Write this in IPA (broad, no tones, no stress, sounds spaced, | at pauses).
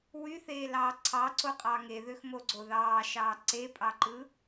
w y θ eː l ɑː ǀʰ ɑ ǀ o qʼ ɑ ŋ e ð ø x m o ɡ͡ǀ o ð ɑː ʃ ɑː ǀ e pʼ ɑ ǃ ɯ